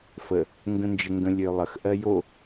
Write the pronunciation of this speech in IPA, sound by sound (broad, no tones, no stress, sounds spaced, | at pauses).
f ə | ŋ ɡ ə̃ n d͡ʒ ə ŋ ɡ ə̃ lʲ ø lˠ ə x ʔ ɜ j o